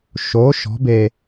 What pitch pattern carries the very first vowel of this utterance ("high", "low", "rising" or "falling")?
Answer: rising